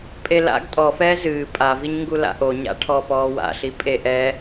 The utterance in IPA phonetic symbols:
pʼ e l a̰ ɡ tʼ ɔ f ɛː z ɨː pʼ a v i ɲ ŋ ɡ u l a̰ ʔ o ɲ a̰ ʈʰ ɔː p ɔː w a̰ ɬ i pʼ e ʔ ɛ

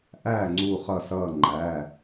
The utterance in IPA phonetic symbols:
ʔ æ˦˨ ŋ͡ǀ u˦˨ χ ʌ˦˨ s ʌː˦˨ ŋ͡ǃ æ˩˧˩

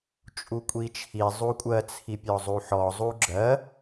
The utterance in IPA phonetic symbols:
t͡ʃʼ u kʷʼ i t͡ʃʰ i zˤ u kʷʼ ɜ t͡sʰ i pʲ ɔ zˤ u ħ ɔ zˤ u ɡ͡ǁ ɜ

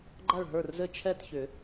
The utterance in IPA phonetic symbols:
ɡ͡ǃ a˥˩ ɭ ɦ ə˞˥˩ r z ɘ˥˩ t͡ʃʰ ɛ˥˩ t ç ʏ˨˩˦

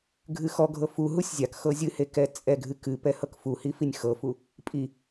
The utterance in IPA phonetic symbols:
ɡʱ ɨ x ɔ ɡʱ ɤ f u ɦ u sʲ zʲ a k x ɤ zʲ ɨ h e k ɛ t͡sʼ ɛ ɡʱ ɨ k ɨ p ɛ h ɤ k f u h i f i nʲ x ɤ f u | pʼ i

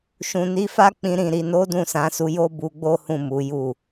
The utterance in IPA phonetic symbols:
ʃ ũ˨ n i˨˦ f a˦ k͡p ĩ˧ ɾ ĩ˨ ɾ i˨ n o˨˦ d ũ˦˨ s ã˧ s u˧ j o˦ b u˧ ɡ͡b o˦ h ũ˦˨ m u˨˦ j u˦˨

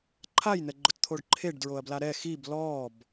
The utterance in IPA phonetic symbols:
ǃʰ a j n̪ ɛ ɡ͡ǃ ʊ t t̪ʰ o ɖ ǃʰ e ɖ d ɹ o ɐ̯ b l a ɾ ɛ x i b l ɔː b

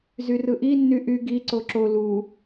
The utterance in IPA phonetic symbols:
z y r ɯ ʔ i nː y ʔ y ɡ i ǀ o ǁ o l u

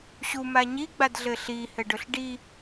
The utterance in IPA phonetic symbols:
ɕ u m a ɲ i ɡ͡b a d ɮ ɘ ɬ i h ɘ ɖ ɵ ɬ ɖ i

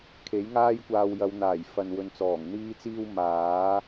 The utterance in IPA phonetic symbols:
kʰ e˨˥ j ŋ aː˥ j kʷ aː˧ w j ɐ˨˧ w n̪ aː˨˩ j f ɐ˧ n w ɵ˧ n t͡s ɔː˨˩ ŋ n̪ iː˥ t͡s iː˥ w m aː˨˥

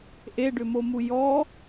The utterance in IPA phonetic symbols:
ʔ e ɖ ʏ m o m u j ɔ

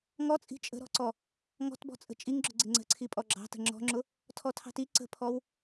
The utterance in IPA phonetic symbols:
ŋ ɔ t͡sʼ i̤ t͡ʃʼ ə̤ ɾ ɔ̤ ǀ ɔ | ŋ ɔ̤ t b ɔ̤ t͡sʼ ə̤ t͡ʃʼ i ŋ ɡ͡ǁ ʊ ɡ͡ǀ ɪ ŋ͡ǀ ə̤ ǀʰ i pʼ ɔ ɡ͡ǁ ɑ̤ t ə̤ ŋ͡ǁ ɔ̤ ŋ͡ǁ ʊ | tʰ ɔ tʰ ɑ̤ t i ǀ ə̤ pʰ ɔ w

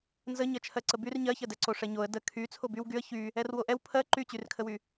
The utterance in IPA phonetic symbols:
n z ə ɲ ɜ t͡ʃʰ ɜ ǀ ə b y r ɲ ɜ ç ɜ d ɛ ǀ o ʂ ɛ ɲ o ə̯ d ə kʰ y t͡sʰ o b y w ɡ y ə̯ ç y | ɛ r w o ʔ ɛ w pʰ ɜ ǃ y t͡ɕ y r kʰ ə w y

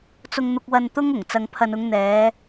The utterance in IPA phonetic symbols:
t͡s ʊ˧ ŋ n̪ ʊ˧ k̚ w ɐ˧ n t̪ ʊ˥ ŋ ʊ˨˩ ŋ t͡s ɐ˨ ŋ pʰ ɐ˨ n ʊ˨˧ ŋ n̪ ɛː˨˧

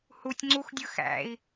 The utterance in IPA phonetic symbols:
h u tʲ ŋ͡ǀ u x dʲ ɯ x æ̰ i̯

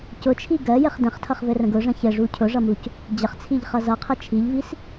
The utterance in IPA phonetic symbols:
c ʊ t͡ʃʰ i ɡ ɜ j ɘ χ d ə̃ χ tʰ ʌ χ v ɘ r ə̃ ɡ ʊ ʐ ə̃ ç ɘ ʐ u cʰ ʊ ʐ ʌ m u c | d͡ʑ ə χ t͡sʰ i ʎ χ ʌ z ʌ qʰ ɘ t͡ʃʰ i ʎ v i s

